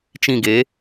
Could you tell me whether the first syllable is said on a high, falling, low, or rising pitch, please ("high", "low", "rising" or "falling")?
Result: falling